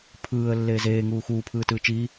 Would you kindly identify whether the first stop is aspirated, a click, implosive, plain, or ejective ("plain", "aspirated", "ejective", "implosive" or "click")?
aspirated